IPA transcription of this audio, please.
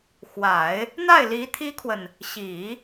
x w a˨˩˦ ɪ̯ | n̪ a˥˩ ɪ̯ l i˧˥ t̪ʰ i˥ kʰ w ə˨ n | ɕ i˨˩˦

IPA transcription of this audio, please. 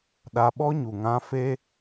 ɗ a˧ ɓ ɔ˦ ɲ u˨ ŋ ã˧ f e˦

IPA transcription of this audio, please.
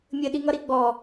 mʲ ɘ ɗ i ŋ ʌ ɾ i ɡ͡b ɔ

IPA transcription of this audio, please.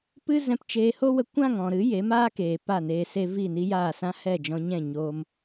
p ɨ˦ z ɛ̃˧ p t͡ʃ eː˧ h o˦ w ə˧ kʷ ã˦˨ ŋ ɔ̃˨ ɾ ɨ˨˦ j e˨˦ m aː˦ k eː˨ p a˦˨ n eː˧ s e˦ v i˦˨ n i˦ j aː˦˨ s ã˦ h ɛ˦˨ d͡ʒ ɔ̃˧ ɲ ɛ̃˦˨ ɲ oː˧ m

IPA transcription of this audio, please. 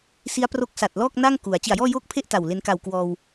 s i˦˥ a̯ p r o˦˥ k̚ s a˨˩ t̚ l ɔː˥˩ k̚ n a˥˩ ŋ k u˩˦ a̯ t͡ɕ i˨˩ a̯ j ɔː˥˩ j oː˥˩ k̚ pʰ e˥˩ ʔ t a˨˩ w l e˧ n k a˨˩ w k w ɔː˧ w

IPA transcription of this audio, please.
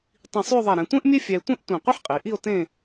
tˤ ĩ˧˩ sˤ y˥˧ o̯ ðˤ ɛ˧˩ ɾ ɛ̃˩˧ tʷ ẽ˥ ʔ mʲ e˥ fʲ æ˧ e̯ tʷ ẽ˥ ʔ tʷ ẽ˧˩ qʷ e˥ ħ qʼ i˩˧ ʔ i˥˧ o̯ t ẽ˥˧

